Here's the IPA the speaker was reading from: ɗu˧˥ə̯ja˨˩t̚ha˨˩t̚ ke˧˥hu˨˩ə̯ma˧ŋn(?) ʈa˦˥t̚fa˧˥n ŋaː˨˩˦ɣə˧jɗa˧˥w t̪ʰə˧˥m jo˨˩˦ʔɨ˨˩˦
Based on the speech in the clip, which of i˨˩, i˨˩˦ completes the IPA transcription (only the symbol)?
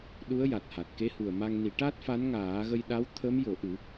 i˨˩˦